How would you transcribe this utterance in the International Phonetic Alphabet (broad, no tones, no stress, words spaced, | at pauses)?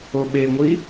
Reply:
oɓeŋʷi